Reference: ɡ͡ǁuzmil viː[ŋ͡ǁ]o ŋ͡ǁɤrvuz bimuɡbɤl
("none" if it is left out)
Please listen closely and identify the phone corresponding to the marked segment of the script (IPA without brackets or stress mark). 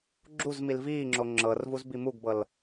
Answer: ŋ͡ǁ